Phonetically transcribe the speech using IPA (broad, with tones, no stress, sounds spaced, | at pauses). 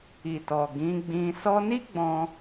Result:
i˨ t ɔ˨ ɡ ĩ˨˦ ɡ͡b ĩ˧ s ɔ˧ n i˦ ɡ͡b ɔ̃˦